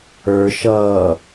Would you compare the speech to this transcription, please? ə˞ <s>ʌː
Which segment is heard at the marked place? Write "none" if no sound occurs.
ʃ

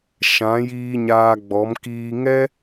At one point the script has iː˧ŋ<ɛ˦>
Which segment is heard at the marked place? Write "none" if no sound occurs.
ɛ˦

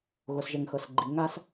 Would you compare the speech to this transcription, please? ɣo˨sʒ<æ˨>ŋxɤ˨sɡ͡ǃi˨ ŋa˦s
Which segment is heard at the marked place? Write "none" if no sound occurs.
ɛ˨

